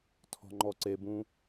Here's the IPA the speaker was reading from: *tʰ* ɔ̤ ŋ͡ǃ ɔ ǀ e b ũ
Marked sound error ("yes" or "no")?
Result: no